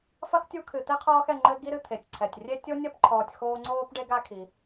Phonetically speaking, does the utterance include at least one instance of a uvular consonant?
yes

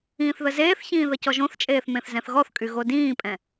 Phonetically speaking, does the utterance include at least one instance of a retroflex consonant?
no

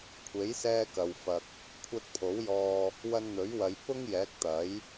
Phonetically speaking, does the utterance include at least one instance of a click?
no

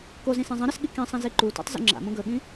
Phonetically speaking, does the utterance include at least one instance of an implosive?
yes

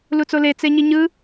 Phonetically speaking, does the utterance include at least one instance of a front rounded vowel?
no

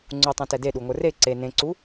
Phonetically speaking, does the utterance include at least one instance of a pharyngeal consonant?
no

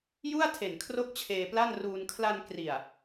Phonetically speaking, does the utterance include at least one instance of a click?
no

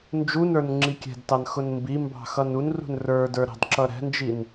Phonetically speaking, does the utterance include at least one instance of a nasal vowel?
no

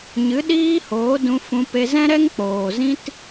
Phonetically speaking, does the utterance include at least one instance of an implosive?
yes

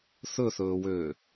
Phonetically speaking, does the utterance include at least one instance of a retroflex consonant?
no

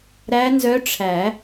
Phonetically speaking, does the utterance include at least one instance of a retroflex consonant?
yes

